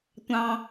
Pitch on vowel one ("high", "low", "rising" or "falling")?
low